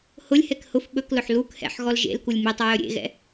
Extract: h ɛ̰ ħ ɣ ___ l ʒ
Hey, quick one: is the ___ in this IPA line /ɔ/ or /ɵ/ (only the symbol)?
ɔ